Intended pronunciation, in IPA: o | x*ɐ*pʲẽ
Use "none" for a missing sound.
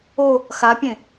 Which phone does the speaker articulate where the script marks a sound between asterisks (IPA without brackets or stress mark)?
a